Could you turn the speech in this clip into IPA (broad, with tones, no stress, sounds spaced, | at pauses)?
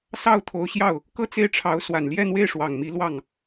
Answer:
s ɑ˥˩ ʊ̯ t̪ʰ o˧˥ ʊ̯ ɕ j ɑ˥˩ ʊ̯ | k ɤ˥˧ t͡s e˥˩ ɪ̯ ʈ͡ʂʰ ɑ˧˥ ʊ̯ s w a˨˩ n l j ɛ˥˧ n̪ w e˥˩ ɪ̯ ʂ w ɑ˨˩ ŋ m i˧˥ l w ɑ˥˩ ŋ